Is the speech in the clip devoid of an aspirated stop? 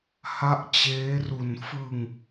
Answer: yes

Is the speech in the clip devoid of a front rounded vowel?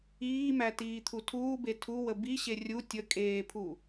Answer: yes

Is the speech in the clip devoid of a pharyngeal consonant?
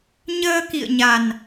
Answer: yes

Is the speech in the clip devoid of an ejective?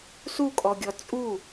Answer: no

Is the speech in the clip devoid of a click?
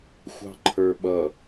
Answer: no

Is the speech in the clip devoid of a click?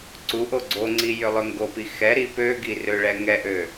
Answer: no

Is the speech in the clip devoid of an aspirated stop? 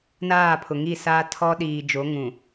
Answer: no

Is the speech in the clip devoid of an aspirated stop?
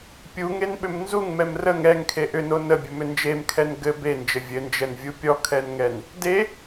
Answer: no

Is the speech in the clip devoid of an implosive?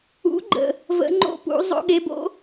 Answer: no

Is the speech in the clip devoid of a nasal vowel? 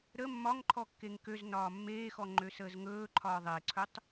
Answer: yes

